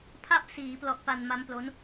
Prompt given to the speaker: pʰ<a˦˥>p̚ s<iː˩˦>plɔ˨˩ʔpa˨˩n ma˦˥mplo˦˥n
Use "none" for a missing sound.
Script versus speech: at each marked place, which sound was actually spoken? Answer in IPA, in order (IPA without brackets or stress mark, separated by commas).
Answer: a˥˩, iː˩˦